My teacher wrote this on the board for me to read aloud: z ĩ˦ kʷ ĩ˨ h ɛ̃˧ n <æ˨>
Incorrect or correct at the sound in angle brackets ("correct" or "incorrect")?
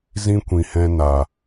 incorrect